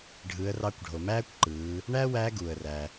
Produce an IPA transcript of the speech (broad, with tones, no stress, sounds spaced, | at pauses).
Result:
ɖʱ ɯ˩˧ ə̯ r ɑ˧ kʷ ɖʱ o˩ m æː˥ kʷ ǃ ɯː˩˧ | ɳ æː˥ w æː˧˥ ɡ uː˩ ə̯ r æ˩